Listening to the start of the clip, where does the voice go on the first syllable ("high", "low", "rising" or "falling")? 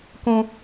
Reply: high